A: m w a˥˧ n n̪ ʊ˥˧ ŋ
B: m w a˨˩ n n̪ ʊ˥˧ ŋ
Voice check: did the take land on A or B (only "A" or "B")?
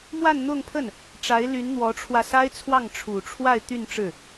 A